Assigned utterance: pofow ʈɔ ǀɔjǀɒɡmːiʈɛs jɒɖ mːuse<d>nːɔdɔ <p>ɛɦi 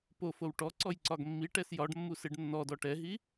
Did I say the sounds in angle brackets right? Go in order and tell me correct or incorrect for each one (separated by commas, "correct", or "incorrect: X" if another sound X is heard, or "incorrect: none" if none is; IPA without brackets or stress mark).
incorrect: ɖ, incorrect: ʈ